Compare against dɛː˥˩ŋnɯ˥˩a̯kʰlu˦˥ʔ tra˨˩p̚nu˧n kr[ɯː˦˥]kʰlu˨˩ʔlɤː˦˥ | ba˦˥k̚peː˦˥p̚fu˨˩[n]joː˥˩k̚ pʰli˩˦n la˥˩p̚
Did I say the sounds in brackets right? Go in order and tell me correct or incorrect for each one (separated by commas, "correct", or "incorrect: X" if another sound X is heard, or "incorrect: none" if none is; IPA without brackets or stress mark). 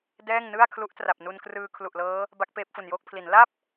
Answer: incorrect: ɯː˧, correct